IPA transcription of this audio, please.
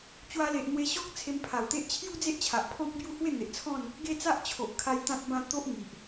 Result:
t͡ɕ w a˧ l e˨ ʔ n̪ w e˧ ɕ ɔ˦ k̚ t͡sʰ e˧ m pʰ a˨˩ w t̪ e˦ ʔ t͡ɕʰ j u˦ d͡z e˦ ʔ t͡ɕʰ a˨ ʔ pʰ ɔ̃˦ k̚ b j u˥˧ h w e˥˧ n̪ e˨ ʔ t͡sʰ ɔ̃˥˧ n | ɡ e˥˧ t͡s a˦ ʔ t͡ɕʰ o˨ ʔ kʰ a˧ j t̪ ã˦ t̚ b ã˥˧ t̪ o˦ ʔ ŋ i˨ ʔ

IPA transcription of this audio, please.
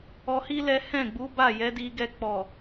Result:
ɔ˧ h i˦ l ɛ˦ h ɛ̃˦˨ ɡ͡b u˨˦ b a˦˨ j ɛ˨˦ d i˧ ɡ ɛ˧ k͡p ɔ˨

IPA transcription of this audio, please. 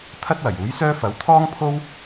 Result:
t̪ʰ ɐ˥ t̚ w ɐ˨˩ j uː˨˥ j s œː˥ f ɐ˨˥ w t̪ʰ ɔː˥ ŋ pʰ o˥ w

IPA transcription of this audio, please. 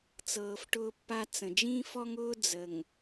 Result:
t͡s ɤː˨ f ʈ ʊː˦ pː a˦ t͡s ə̃˨ d͡ʒ ĩ˦ f ɔ˦ ŋ ʊː˦ d͡z ə˨ ŋ

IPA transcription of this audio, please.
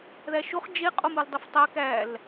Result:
ð æ ʃ o χ d͡ʒ e qʼ o m u l dˤ i f tˤ æ k æ l

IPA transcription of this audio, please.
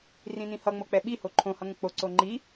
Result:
r ĩ n ĩ h ʌ ŋ͡m o k͡p ɛ ɓ i h o ǃʰ õ h ʌ ŋ ə̃ k͡p o ǀ o ŋ͡ǃ i

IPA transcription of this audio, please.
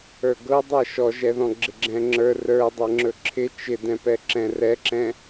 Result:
ə˞ ɡ ɤ dˤ ɛ ʃ ɔ ʒ ɛ ð ɔ̃ ɡ͡ǁ ɪ ɡ͡ǁ ɛ̃ ŋ͡ǁ ə˞ r ə˞ dˤ ɛ ŋ͡ǁ ɵ ǁʰ ɪ t͡ʃ ɪ d ɛ̃ p ɛ ǁ ɛ̃ r ɛ ǁ ɛ̃

